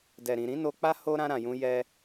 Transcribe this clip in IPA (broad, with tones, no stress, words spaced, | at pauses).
dɛ˨ɾĩ˨ɾĩ˨˦ no˧k͡pa˦ ho˦ ɾã˧ ɾã˨jũ˧ jɛ˦